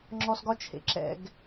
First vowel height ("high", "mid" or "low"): mid